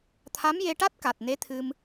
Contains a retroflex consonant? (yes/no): yes